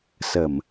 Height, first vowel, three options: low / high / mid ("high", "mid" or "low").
mid